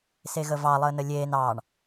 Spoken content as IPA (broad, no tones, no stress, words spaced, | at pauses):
seɣəvɑ lˠəːnəlʲeːn ɑɳ